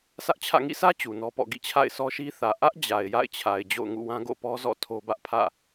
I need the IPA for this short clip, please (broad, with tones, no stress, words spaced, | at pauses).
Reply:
sä˦ʔt͡ɕʰä̰˦˨ ŋḭ˦˨sä˦ t͡ɕu˨nɔ˦pɔ̰˦˨ ɡḭ˦˨t͡ɕʰa̰˦˨ɪ̯sɔ˦ ʃi˦θä˨ ʔä˦ʔ d͡ʑa˨ɪ̯ja̰˦˨ɪ̯t͡ɕʰa˨ɪ̯ d͡ʑo̰˦˨ʊ̯ŋṵ˦˨wã˦ ɡo̰˦˨pɔ˦zɔ̰˦˨ tʰo˦bä˦ʔ pʰä̰˦˨